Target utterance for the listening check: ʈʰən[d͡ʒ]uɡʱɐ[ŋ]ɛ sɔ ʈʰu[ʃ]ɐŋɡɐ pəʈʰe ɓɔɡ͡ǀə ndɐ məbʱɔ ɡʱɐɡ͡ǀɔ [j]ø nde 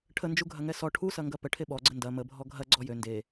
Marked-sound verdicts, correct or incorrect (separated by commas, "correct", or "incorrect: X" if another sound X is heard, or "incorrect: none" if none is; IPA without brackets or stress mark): correct, correct, incorrect: s, correct